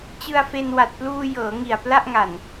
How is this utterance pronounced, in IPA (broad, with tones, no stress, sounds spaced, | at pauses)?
t͡ɕ ɯ˧ a̯ f e˧ n w a˨˩ t̚ p l uː˧ j ɤː˩˦ ŋ i˨˩ a̯ p l a˥˩ ʔ ŋ a˨˩ n